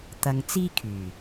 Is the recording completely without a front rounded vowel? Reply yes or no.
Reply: no